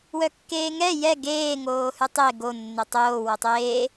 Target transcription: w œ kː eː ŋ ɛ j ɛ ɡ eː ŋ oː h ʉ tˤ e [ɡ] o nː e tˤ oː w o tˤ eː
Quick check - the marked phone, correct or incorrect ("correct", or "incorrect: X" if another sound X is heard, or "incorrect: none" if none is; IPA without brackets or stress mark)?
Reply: correct